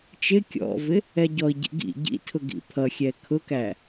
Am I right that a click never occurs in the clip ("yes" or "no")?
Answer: yes